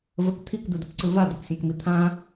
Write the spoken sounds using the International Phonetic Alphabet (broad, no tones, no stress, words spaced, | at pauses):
vək t̪ʰikd̪ɯdəpǀɯ vad̪əksʲãkmi t̪ʰã